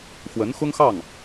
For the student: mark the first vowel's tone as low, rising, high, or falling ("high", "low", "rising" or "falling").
rising